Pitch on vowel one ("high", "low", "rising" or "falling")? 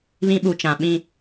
high